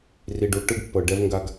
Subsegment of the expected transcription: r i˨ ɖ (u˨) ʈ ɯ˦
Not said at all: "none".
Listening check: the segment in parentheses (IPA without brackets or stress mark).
u˨